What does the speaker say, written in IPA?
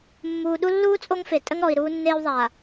mː uː˨ ɗ u˦ lː uː˦ t͡sʼ o˦ ŋ f e˨ tʼ ə˦ ŋ ɾ ɔ˨ i̯ ɾ uː˦ nː eː˦ w ðˤ a˨

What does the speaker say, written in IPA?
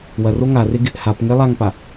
w ɐ r o ŋ a r e ɡ ɪ ʔ h a p ŋ e lˠ a ŋ p a

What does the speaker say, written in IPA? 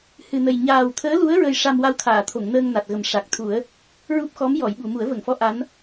h ɨ˨˩ n ə˨˩ j ɲ aː˨˩ w t̪ʰ əː˧˥ l u˧˥ ə̯ ɹ ə˧ j ʂ a˧ m w a˧ w t̪ʰ aː˨˩˨ t̪ʰ o˨˩˨ ŋ n əː˧ ŋ n a˨˩ t̚ ɣ ə˨˩ m ʂ a˨˩ k̚ t̪ʰ u˨˩˦ ə̯ | ɹ u˦˥ p̚ x ɔ˧˥ m j ɔ˨˩˨ j ɓ u˨˩˨ m u˨˩˦ ə̯ v ə˨˩˨ ŋ f ɔ˧˥ ʔ a˧˥ n

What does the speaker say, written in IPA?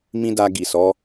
m ĩ˦ d a˧ ɡ i˨ s ɔ˨˦

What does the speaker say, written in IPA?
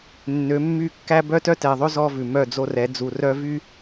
nː ø˨˦ mː y˦˨ kː æ˦ b œ˦ t œ˦ t ɛ˨ ðˤ ø˦ z ɔ˦ v ʉ˨ m œ˦˨ d͡z o˦ r ɛ˨˦ d͡z u˨ r œ˦ v y˦

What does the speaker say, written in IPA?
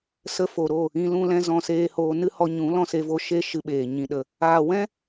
s ə˧ f o˨ ɾ o˦˨ | ĩ˧ l ũ˧ l ɛ̃˧ z ɔ̃˧ s eː˧ h oː˧ n ɨ˦ h ɔ˧ ɲ ũ˨˦ l ɔ̃˦ s e˧ v o˦ ʃ e˧ ʃ ɨ˧ ɓ eː˨ ɲ ĩ˨ ɗ ə˨ | aː˨ w ɛ̃˦

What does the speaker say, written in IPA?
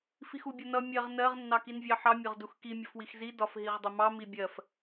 f i x u bʲ ʌ n ʌ mʲ ɜ ʁ n ɜ ʁ nː ɑ k i n vʲ ɑ ħ ɑ mʲ ɒ ʁ d u x k i mʲ ʌ f w i x z i d ɒ f ɦ i ʁ dˤ ɪ m ɑ m i bʲ ɜ f

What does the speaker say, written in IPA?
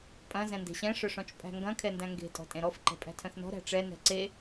pʼ ɐ̃ z ɛ̃ n d e̤ ɕ ɛ̃ ʂ œ ʂ ɔ̃ t͡ʃ pʼ æ̤ ŋ ɡ ɐ̃ kʰ ɛ n d æ̃ ŋ ɡ e̤ tʼ ɔ̤ tʼ ẽ ɾ ɔ f ǃ ɛ̤ pʼ æ̤ tʰ œ̃ θ n ɔ̤ ɾ æ̤ ʈ͡ʂ ɛ n ɛ̤ ǀ e

